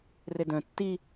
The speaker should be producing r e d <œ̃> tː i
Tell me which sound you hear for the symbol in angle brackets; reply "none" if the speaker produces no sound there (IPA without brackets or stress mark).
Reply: œ̃